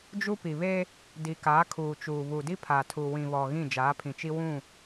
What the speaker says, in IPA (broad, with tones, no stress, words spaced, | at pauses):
d͡ʒu˦pi˨βe˦ | di˨kaː˨˦kʰuː˨t͡ʃuː˨ βu˨di˦pʰaː˨tʰu˨ wĩ˨βɔ˨ ɣĩ˦˨d͡ʒaː˨˦pʰĩ˨t͡ʃi˦ wũ˦˨